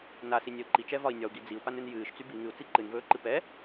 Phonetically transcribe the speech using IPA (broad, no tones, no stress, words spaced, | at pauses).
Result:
nasinʲɛu̯ ǃit͡ʃɛvɒi̯ nʲɒu̯ɡi d͡ziu̯panɨn jɨːʃt͡sy bi ŋɨu̯t͡si ǃɨnvɵːǃɨ pɛ